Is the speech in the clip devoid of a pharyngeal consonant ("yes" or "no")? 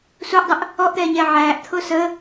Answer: no